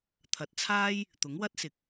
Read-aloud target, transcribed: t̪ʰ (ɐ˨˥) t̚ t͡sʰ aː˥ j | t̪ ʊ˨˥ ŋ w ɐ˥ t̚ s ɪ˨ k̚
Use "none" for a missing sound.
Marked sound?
ɐ˨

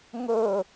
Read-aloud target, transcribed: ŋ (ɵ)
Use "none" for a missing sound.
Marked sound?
ɵ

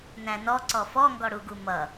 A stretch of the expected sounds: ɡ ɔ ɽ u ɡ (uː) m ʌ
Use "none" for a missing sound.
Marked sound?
u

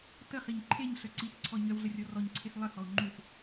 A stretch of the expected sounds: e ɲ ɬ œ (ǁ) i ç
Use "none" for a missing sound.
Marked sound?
ǀ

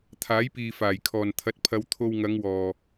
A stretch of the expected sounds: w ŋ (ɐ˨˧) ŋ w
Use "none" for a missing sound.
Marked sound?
ɐ˨˧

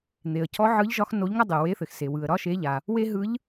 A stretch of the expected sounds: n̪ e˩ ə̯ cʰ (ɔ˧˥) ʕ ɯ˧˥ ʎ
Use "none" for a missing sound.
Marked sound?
ɔ˧˥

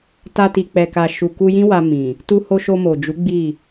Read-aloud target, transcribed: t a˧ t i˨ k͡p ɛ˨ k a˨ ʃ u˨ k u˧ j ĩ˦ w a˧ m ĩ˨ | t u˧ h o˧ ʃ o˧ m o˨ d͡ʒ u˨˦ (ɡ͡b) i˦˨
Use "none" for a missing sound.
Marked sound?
ɡ͡b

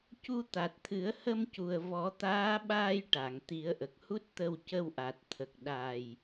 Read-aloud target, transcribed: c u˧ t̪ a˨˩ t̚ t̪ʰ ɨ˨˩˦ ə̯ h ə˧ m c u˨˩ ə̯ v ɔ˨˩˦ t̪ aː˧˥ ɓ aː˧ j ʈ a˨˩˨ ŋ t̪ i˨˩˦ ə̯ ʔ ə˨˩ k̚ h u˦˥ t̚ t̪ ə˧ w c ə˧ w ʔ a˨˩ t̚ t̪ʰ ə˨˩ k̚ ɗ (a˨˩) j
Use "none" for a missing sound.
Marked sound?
a˨˩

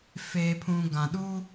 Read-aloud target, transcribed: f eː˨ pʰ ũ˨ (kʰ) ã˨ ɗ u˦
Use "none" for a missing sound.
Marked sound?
ɡ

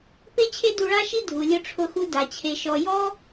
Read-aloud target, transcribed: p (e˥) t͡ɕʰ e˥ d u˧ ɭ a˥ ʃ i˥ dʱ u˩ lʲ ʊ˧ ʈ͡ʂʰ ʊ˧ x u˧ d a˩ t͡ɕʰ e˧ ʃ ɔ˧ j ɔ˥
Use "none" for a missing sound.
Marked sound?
e˥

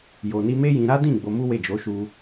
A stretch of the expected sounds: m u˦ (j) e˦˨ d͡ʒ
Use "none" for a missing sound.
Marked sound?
w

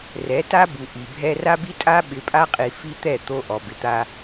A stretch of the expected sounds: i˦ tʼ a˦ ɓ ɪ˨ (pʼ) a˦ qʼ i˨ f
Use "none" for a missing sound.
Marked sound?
pʼ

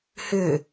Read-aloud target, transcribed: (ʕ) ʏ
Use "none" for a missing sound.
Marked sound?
h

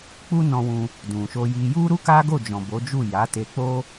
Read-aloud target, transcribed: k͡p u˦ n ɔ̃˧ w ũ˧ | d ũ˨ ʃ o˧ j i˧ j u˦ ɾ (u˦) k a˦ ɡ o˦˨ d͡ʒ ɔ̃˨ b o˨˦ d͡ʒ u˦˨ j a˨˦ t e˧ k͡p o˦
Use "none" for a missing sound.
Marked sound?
u˦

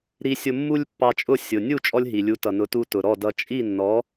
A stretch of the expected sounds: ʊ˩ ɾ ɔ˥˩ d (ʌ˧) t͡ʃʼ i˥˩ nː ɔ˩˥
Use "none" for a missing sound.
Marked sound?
ʌ˧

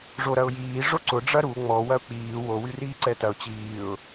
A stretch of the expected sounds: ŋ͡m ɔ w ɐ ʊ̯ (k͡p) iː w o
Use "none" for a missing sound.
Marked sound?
k͡p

